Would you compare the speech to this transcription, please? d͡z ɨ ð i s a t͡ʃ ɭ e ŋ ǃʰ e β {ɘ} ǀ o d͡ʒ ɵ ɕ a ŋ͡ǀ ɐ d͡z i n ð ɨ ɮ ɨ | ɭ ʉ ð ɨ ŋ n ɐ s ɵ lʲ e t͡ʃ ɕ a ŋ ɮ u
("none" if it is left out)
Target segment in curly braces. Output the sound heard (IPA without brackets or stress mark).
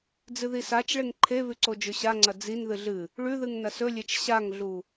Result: ʉ